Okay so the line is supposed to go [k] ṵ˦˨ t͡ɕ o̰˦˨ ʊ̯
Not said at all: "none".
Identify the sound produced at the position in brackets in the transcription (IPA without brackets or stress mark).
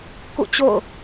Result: k